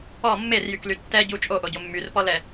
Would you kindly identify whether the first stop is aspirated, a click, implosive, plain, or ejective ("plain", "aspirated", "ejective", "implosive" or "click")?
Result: plain